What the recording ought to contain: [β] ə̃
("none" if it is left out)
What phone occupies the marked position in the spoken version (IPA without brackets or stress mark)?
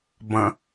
b